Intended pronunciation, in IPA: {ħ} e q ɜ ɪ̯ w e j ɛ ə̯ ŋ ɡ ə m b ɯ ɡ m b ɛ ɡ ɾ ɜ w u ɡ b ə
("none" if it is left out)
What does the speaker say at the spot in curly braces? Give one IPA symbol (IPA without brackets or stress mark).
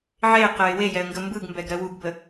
ʕ